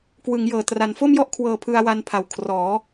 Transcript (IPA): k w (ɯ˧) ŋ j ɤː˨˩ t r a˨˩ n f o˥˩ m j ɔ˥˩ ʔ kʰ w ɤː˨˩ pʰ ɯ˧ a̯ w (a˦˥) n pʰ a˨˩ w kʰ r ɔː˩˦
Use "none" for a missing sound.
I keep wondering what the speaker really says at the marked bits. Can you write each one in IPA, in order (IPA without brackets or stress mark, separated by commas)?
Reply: ɯ˩˦, a˧